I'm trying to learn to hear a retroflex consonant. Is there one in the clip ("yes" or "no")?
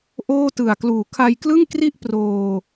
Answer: no